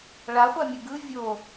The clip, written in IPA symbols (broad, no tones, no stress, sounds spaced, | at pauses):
ɭ a χʷ a mʲ u ɡ ɯ vʲ o